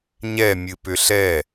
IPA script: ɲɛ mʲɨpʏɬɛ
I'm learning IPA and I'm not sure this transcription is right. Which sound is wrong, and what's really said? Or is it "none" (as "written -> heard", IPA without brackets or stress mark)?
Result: none